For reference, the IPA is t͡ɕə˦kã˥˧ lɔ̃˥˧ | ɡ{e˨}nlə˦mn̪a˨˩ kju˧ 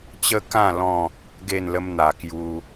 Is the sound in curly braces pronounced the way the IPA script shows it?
no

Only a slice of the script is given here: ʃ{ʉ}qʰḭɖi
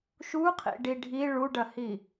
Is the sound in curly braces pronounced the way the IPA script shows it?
no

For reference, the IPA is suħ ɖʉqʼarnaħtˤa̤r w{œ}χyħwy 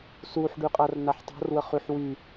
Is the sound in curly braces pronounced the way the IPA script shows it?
no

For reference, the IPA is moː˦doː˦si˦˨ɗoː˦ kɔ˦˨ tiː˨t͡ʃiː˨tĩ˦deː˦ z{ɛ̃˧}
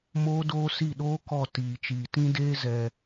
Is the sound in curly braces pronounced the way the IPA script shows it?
no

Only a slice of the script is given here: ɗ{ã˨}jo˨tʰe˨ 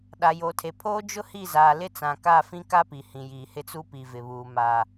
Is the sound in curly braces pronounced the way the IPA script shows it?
no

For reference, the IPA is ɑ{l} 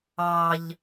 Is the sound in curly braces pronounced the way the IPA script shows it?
no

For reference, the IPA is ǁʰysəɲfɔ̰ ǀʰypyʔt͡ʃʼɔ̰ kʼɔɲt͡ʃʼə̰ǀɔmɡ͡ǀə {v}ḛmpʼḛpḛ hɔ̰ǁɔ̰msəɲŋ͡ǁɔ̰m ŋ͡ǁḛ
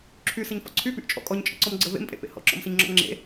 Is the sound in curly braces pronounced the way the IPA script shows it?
yes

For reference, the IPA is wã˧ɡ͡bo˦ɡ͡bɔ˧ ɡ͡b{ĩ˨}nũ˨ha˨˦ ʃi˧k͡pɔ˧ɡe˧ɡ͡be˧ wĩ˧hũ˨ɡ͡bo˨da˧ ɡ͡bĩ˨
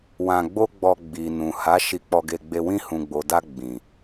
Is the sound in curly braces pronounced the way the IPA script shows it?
no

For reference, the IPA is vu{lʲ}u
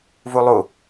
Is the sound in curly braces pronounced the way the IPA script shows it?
no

